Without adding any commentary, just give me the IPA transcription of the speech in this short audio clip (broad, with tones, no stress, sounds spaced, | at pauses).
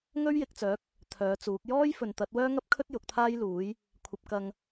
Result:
ŋ ɵ˥ ɥ j ɪ˨ k̚ t͡s œː˨˥ k̚ | t̪ʰ œː˨˥ t͡s uː˨˥ k̚ j ɔː˥ j f ɵ˨ n t̪ ɐ˨˥ t̚ w œː˥ ŋ ɐ˥ p̚ kʰ ɵ˥ t̚ j ʊ˨˥ k̚ t̪ʰ aː˥ j l uː˨˥ j | kʷʰ ɐ˧ p̚ k ɐ˧ ŋ